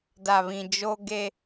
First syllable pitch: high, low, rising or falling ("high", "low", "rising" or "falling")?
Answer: low